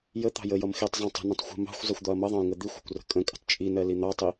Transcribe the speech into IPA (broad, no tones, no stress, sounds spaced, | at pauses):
j ə t̪ ɑ̤ j ə j ʌ m x i tˤ zˤ ɑ̃ tˤ ə̤ n ə̃ tˤ xʷ ə̤ m ɑ̤ xʷ zˤ ʌ xʷ d̪ ɒ ɐ̯ m ʌ ðˤ ɑ̃ j ŋ ə d̪ i xʷ ɑ̤ kʷ r ə̤ kʼ ə̃ kʼ ə̤ tˤ t͡ʃʼ i n ɜ l i n̪ ɑ tˤ i